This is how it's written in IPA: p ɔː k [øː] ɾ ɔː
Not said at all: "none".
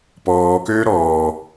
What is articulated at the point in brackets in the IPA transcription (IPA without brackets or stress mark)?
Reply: øː